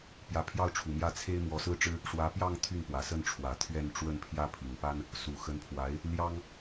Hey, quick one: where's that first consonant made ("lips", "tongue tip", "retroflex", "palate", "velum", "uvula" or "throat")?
lips